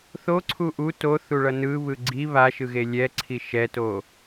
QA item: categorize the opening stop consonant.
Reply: click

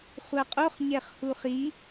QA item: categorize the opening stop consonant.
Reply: ejective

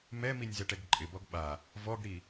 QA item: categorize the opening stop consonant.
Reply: plain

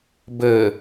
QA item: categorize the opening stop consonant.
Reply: plain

